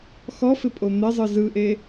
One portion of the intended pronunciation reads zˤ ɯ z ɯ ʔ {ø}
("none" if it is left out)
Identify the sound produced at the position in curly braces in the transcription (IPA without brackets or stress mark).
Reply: e